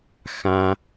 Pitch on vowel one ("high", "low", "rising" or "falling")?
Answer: low